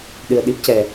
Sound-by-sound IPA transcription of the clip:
ɗ ɨ˨˩ ə̯ ɗ i˦˥ p̚ c ɛ˨˩

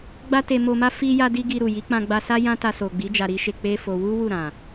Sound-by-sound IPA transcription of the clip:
ɡ͡b a˦ t e˧ m o˧ m a˦ f i˦ j a˦ d i˦ ɡ i˧ ɾ u˨ j i˨˦ k͡p ã˧ ɡ͡b a˧ s a˦ j ã˦ t a˧ s o˨ ɡ͡b i˨˦ d͡ʒ a˧ ɾ i˦ ʃ e˧ k͡p e˦ f o˧ w u˦ w u˦˨ ɾ ã˨

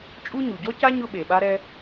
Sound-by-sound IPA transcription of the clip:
t͡ʃʼ u˥ ɲ u˩ ɟ ɔ˥ c a˥ ɲ ʊ˥ ɓ e˩ ɓ a˥ ɾ ɛ˥

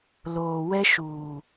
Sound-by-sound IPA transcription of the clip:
l oː˨ w ɛ˦ ʃ uː˨

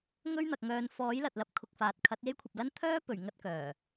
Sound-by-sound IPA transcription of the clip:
ŋ ɵ˥ ɥ n̪ ɐ˨ k̚ ŋ œː˨˧ n f ɔː˨˥ j l ɐ˨ t̚ l ɐ˨˥ p̚ kʰ ʊ˨ k̚ f aː˨ t̚ kʰ ɐ˨˥ t̚ j e˥ j kʷʰ ɐ˨ p̚ l ɐ˥ n t̪ʰ œː˥ p ɵ˨˩ ɥ ŋ ɐ˥ t̚ k œː˨˩

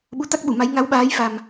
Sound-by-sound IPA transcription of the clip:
ɓ u˨˦ t̪ a˦˥ k̚ ɓ u˧˩ m a˨˦ j ŋ a˨˦ w ɓ aː˨˦ j f a˨˩ m

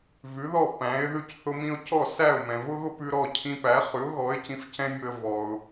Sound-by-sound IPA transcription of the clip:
v ʉ˩˥ ð ɔ˥˩ p æ̃˩˥ ɪ̯ ð ʉ˧ c θ ʊ˧ m ĩ˧ ʊ̯ c ɔ˥˩ s æ˥˩ ʊ̯ m ɛ̃˩ v ʊ˥ ɣ ʊ˥ p ʉ˧ ɾ ɔ˥˩ cʰ ĩ˧ p æ˩˥ χ ʉ˩˥ ʊ̯ ɣ ɔ˩˥ ɪ̯ c ĩ˧ f c ɛ̃˥ mʲ ʊ˧ ə̯ v ɔ˩ ʊ̯

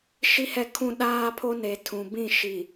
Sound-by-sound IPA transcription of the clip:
ʃ i˦ h ɛ˦˨ kʰ ũ˦ ɗ aː˦ pʰ o˦ n e˨ tʰ ũ˨ b ĩ˦˨ ʃ i˨

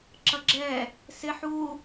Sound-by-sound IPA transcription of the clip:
ǁ ʌ ɡ͡ǁ ɛ | s ɪ ħ u

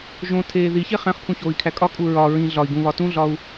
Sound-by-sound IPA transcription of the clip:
ʒ õ tʰ eː ð i ç e χ æ̃ χ pʰ ũ ç oː i̯ kʰ æ kʼ ɒ kʼ u ɹ ɒ ɹ ĩ ɮ ɒ i̯ ɡ ũ β ɒ t ũ ɮ ɒ u̯

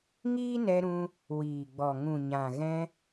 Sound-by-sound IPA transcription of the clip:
ŋ iː˦ n ɛ˧ ɾ ũ˧ | w iː˨ ɡ͡b ɔ˨ ŋ ũ˨ ɲ ã˨ ɣ ɛ̃˧

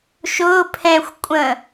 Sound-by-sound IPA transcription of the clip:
ʃ ʊː pʰ ɛ̃ xʷ kʷʼ ə̃

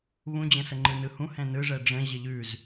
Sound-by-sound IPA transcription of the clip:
β ũ d͡ʑ ə̃ s ə ŋ͡ǃ ɯ n ɯ h ũ h ɛ̃ n ɯ ʐ ɛ ɖ͡ʐ ə̃ ʑ ə ʎ ʉ z

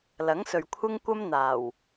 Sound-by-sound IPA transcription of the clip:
l ɐ˨˥ ŋ s ɵ˨ ɥ kʷʰ ɪ˧ ŋ kʷ ɐ˧ m n̪ aː˨˩ w

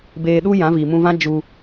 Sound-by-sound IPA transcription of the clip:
b eː˧ ɗ u˦ j ã˨˦ v iː˨ m ũ˧ v ã˦ d͡ʒ u˧

